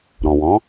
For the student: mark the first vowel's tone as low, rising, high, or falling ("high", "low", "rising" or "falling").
low